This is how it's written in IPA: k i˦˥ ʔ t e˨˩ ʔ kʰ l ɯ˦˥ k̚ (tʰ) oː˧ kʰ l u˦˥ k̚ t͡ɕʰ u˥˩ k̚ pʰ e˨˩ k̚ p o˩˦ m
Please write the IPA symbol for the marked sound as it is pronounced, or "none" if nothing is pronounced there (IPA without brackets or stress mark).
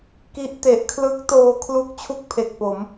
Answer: t